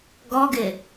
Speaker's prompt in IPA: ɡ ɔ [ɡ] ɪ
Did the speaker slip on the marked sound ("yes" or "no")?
no